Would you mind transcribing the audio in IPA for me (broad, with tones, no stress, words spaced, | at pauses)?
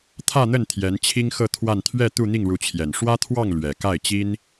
t̪ʰä˥˧n̪ə˥˩n t̪ʰjɛ˧˥nt͡ɕʰi˥ŋxɤ˥˧ t̪ʰwa˥˧n t̪ʰɥɛ˥˧ t̪u˥˧n̪i˥˩ŋɻu˧˥t͡ɕʰjɛ˨˩n ʂwä˥t̪ʰwɑ˥˩ŋ lɥɛ˨˩ka˥˩ɪ̯t͡ɕi˥n